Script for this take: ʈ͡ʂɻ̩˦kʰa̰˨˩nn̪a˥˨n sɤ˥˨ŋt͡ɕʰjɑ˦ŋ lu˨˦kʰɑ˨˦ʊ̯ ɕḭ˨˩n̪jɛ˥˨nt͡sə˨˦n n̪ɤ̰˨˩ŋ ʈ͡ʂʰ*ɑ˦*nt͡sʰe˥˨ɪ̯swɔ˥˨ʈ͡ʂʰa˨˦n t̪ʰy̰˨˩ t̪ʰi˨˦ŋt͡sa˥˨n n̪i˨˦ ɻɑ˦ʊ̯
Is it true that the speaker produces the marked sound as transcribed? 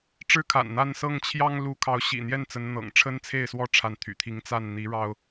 no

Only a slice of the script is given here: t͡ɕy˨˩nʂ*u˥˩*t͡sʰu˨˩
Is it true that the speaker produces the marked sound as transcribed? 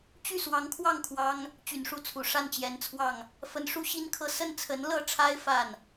yes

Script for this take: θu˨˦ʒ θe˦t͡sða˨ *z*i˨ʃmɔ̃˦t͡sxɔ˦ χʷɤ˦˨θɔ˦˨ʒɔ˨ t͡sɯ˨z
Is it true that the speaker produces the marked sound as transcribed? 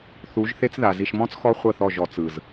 yes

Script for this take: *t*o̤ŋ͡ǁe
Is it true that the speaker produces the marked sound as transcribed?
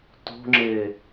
yes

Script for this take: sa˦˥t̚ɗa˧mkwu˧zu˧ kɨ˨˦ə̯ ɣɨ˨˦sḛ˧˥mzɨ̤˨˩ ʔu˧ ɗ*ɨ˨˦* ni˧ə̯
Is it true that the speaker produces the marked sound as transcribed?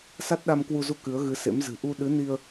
yes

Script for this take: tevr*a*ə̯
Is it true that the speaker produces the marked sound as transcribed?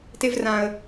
no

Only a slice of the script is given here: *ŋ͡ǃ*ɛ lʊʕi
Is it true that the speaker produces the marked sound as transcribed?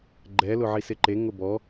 no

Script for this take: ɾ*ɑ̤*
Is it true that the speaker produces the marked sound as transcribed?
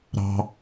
yes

